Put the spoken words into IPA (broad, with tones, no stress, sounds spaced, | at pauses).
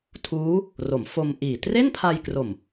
tʰ uː˦˥ | r o˩˦ m f o˧ m ʔ iː˨˩ t r e˥˩ n pʰ a˧ j k r o˨˩ m